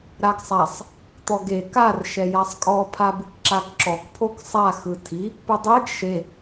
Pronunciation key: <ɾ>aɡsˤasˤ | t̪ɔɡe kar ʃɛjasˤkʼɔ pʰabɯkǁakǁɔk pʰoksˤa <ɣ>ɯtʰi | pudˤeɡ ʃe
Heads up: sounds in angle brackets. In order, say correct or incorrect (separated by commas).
correct, incorrect